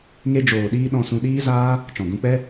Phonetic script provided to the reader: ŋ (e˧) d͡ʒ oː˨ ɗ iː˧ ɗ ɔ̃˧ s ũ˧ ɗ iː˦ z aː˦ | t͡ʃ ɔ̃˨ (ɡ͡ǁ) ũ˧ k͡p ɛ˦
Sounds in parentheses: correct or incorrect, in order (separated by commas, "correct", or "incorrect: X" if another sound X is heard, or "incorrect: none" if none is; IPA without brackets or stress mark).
correct, incorrect: ɡ